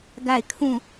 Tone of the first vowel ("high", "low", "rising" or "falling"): falling